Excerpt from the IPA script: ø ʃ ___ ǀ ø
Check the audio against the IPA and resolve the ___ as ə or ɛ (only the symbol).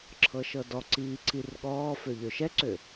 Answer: ɛ